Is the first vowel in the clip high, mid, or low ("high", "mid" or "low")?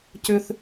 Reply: high